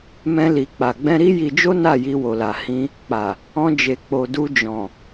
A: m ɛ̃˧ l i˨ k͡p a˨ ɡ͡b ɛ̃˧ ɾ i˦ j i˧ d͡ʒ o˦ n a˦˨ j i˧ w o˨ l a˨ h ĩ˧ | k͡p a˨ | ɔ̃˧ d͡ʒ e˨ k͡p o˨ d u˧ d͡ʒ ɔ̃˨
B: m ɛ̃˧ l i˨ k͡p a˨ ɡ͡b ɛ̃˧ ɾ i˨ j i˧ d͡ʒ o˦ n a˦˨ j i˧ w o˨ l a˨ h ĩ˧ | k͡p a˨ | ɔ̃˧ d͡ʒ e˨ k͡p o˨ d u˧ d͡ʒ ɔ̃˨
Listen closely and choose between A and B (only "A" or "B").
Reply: A